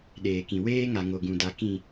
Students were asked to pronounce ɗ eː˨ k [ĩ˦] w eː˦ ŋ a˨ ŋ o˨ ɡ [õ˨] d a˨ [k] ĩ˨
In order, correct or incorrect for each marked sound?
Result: incorrect, incorrect, correct

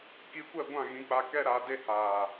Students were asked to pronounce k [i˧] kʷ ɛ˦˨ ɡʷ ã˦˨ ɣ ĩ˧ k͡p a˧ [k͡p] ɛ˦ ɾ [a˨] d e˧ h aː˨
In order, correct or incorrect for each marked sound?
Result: correct, incorrect, incorrect

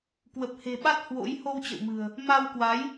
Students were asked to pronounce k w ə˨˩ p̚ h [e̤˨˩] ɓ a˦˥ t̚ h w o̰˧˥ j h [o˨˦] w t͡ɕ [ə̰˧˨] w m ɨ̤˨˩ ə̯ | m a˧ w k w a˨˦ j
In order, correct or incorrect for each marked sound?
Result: correct, incorrect, correct

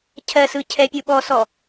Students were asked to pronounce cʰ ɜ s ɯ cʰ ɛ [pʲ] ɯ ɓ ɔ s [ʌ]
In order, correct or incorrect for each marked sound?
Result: correct, incorrect

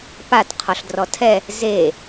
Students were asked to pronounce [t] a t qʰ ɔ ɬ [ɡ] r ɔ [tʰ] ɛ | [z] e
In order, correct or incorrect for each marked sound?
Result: incorrect, incorrect, correct, correct

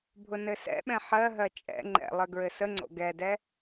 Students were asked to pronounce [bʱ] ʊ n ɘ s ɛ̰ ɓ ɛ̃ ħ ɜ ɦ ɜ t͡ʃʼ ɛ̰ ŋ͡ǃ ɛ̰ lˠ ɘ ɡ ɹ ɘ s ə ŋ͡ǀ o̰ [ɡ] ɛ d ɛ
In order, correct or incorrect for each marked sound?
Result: correct, correct

